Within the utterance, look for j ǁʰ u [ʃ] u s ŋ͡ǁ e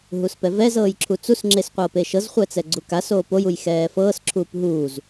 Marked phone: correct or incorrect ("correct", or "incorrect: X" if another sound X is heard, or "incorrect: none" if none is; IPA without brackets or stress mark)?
incorrect: t͡s